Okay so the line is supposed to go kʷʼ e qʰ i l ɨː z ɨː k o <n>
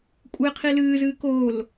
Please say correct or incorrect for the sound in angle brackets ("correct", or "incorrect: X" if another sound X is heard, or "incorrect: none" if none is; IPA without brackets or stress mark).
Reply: incorrect: l